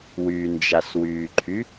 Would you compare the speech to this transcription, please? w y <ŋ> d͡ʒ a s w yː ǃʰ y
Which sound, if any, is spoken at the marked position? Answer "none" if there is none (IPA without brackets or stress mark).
n